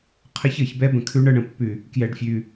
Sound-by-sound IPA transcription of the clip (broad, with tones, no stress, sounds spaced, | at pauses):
qʰ ə˦ ç ɤ˨ ç b ɛ˦ b ə̃˨ kʰ ʉ˦ ɳ ɤ˦ ɳ ə̃˨ pː ʉ˨ | k j ɛ˨ ɖ fʲ ʉ˨